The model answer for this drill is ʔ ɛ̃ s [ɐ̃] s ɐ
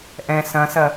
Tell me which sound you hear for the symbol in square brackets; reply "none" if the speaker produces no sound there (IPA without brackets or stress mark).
ɐ̃